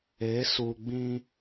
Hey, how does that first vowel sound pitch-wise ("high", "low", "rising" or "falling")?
rising